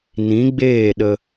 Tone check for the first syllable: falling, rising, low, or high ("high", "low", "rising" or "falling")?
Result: rising